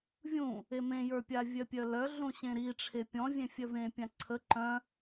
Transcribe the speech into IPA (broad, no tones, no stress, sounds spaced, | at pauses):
vʲ ũ | e m ẽ j ə˞ pʲ a vʲ œ pʲ œ l œ ɮ ũ ɕ ẽ ɾ i ʈ͡ʂʰ e pʲ ɔ̃ vʲ ẽ fʲ œ v ẽ pʲ ã ǀʰ ə ǃ œ̃